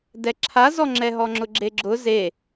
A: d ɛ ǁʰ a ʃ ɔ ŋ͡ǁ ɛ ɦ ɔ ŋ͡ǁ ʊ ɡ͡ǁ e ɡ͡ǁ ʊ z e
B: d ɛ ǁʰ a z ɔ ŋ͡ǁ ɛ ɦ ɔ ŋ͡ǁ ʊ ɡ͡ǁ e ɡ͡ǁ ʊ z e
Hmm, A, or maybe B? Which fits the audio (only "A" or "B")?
B